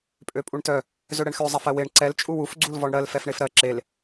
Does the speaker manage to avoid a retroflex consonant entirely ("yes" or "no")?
no